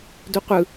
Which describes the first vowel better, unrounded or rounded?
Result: rounded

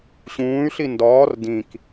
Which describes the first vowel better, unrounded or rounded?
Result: rounded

